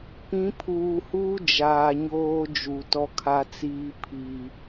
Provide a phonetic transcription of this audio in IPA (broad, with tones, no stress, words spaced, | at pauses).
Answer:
pĩ˨˦pʰuː˨huː˦ d͡ʒaː˨ɲoː˦ d͡ʒu˨tɔ˦kʰa˦t͡siː˦ pʰi˨